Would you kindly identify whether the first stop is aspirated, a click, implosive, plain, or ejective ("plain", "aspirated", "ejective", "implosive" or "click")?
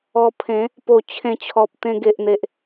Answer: aspirated